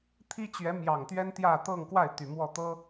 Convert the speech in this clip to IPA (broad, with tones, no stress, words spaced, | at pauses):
t̪ʰi˥t͡ɕɥɛ˧˥mjɑ˨˩ŋt̪ɥɛ˥n t̪jä˥˧ t̪ɤ˥˧ŋkwa˥˩ɪ̯ t̪y˨˩mwɔ˥˩t̪ɤ˥